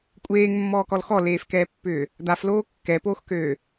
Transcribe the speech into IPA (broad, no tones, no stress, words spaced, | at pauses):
kʷʼeːŋmːɔːkɔl xɔleːfkɛːpːʏː | d̪afloː kːɛpoːxkøː